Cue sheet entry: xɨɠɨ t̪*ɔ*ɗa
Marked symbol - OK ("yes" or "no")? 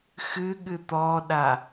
yes